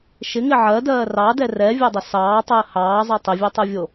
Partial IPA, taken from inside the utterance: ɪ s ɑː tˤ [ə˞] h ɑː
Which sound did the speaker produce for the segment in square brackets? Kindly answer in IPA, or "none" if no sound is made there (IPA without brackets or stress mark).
ɜ